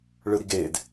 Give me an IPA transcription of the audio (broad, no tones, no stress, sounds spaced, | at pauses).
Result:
ɭ ɯ ɾ i ɡ e d